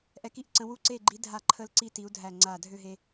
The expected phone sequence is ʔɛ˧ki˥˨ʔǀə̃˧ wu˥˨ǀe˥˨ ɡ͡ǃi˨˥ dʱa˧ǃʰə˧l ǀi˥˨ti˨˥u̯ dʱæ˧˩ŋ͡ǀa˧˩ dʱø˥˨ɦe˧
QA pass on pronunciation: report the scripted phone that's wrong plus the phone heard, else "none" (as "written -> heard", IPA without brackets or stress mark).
none